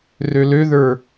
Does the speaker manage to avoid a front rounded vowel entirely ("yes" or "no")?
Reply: no